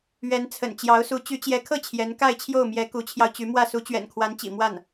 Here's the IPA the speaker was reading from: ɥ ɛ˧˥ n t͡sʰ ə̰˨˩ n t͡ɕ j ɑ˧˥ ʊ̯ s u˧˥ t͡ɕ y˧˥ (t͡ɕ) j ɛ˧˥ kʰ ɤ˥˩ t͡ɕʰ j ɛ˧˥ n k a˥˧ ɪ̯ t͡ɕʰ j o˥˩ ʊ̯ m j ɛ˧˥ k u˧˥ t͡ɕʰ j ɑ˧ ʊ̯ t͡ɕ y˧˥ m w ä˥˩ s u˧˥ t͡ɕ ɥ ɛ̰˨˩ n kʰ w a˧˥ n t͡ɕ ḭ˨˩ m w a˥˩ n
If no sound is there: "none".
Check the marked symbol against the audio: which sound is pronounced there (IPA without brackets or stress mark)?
t͡ɕ